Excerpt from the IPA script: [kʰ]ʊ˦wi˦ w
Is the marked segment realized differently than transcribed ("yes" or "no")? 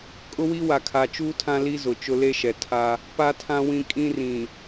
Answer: yes